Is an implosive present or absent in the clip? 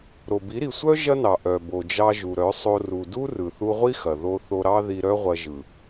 absent